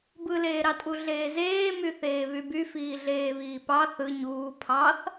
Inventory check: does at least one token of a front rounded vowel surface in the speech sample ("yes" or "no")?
yes